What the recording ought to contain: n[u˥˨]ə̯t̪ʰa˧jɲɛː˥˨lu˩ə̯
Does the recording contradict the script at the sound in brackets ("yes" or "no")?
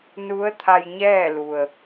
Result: yes